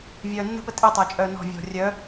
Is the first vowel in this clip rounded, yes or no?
yes